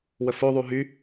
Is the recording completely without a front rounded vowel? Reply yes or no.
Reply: no